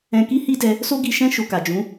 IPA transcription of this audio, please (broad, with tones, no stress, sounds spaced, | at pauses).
ɛ̃˧ k i˦ h i˦ d ɛ˧ | s o˦ ɡ i˧ ʃ ɛ̃˦ ʃ o˧ k a˨ d͡ʒ ũ˨˦